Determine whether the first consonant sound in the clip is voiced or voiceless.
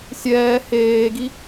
voiceless